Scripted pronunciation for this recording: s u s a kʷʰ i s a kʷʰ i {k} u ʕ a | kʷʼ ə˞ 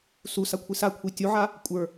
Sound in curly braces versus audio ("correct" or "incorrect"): incorrect